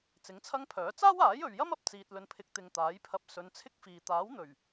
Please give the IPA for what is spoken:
t͡s ɪ˨˥ ŋ t͡sʰ ɐ˥ ŋ pʰ œː˨˥ t͡s aː˥ w aː˨˥ j ɵ˨ ɥ j ɐ˥ m ɐ˥ p̚ t͡s iː˧ t̚ l ɵ˧ n pʰ ɪ˧ k̚ t̪ ɪ˧ ŋ t̪ aː˨˥ j pʰ ɐ˧ p̚ s ɵ˨˧ n t͡sʰ ɪ˥ k̚ f iː˨ t̪ aː˨˥ w n̪ ɵ˨˩ ɥ

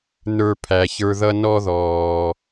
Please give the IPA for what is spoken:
n ə˞˧ pʰ æ˨ ç ə˞˧ ð ʌ˦ n ɔ˦ ð ɔː˨

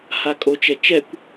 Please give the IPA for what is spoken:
h a kʼ o t͡ʃ ɛ t͡ʃ ɛ kʷ

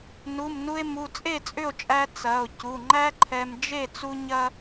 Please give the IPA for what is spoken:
n u˩˧˩ m n u˧ e̯ m u˩˧˩ t͡sʼ e˥˩ t͡sʼ ʏ˥˩ o̯ t͡ʃʼ æ˧ t͡s ɐ˩˧˩ o̯ c u˩˧˩ ŋ͡ǃ æ˥ ǃʰ ɛ˧ m d͡ʒ e˥˩ t͡s u˥ ɲ ɐ˥

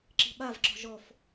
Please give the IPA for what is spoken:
ǁ i̤ ɓ a v ǁ ɔ̤ ʒ ɔ f

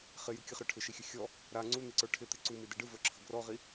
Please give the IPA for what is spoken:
χ ɪ j ɯ kʲ ɘ χ ɾ ə˞ ʈʰ ɪ ʃ i xʲ ɘ xʲ ɔ | ɾ a ŋ͡ǀ u n̪ i ǀ ə˞ ʈʰ ɪ t̪ ɪ ǀ u m i d ɪ ɖ ɯ v ə˞ ǁʰ ə ɡ r ɔ ʁ i

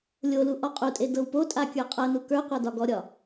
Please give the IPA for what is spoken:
lʲ o l u ʔ ɔ qʼ u tʼ e d ɤ w p o tʼ a kʲ ə˞ qʼ ɤ n u k ə˞ qʷ a d ɒ ɡ ɔ ɾʲ ɒ

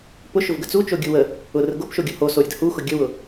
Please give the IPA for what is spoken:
p ʊ ʃ ʊ v ɡ ə t͡s u t͡ʃ o ɡʲ u w ə | ʊ r ə ɡ o p ʃ o ɡʲ ʊ h o s o ɾʲ ə d h u x ʊ ɡʲ ə w ʊ

